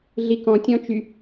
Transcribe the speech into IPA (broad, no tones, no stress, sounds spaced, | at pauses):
ɮ i k ɔ̃ tʲ ɔ̃ t͡ʃ y